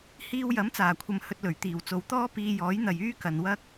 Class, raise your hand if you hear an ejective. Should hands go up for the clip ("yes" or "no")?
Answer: no